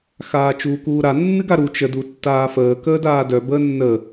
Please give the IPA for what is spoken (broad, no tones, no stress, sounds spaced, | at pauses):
x aː t͡ʃ uː k uː ɾ a nː ɨ ɡ a ɾ u t͡ʃ ə d u tː aː f əː k əː d aː d œ b əː nː ə